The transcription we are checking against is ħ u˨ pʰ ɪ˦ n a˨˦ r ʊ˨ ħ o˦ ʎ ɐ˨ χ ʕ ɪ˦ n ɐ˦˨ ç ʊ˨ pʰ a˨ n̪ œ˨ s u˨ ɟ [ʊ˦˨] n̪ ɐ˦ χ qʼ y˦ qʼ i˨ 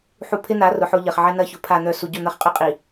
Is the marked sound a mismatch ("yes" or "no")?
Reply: no